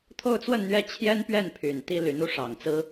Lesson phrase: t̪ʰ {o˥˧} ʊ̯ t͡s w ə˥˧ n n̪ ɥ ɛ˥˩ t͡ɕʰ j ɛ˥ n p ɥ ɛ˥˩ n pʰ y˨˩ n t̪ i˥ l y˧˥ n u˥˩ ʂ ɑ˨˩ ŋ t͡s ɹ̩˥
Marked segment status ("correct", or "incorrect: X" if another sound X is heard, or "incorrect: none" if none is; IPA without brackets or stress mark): correct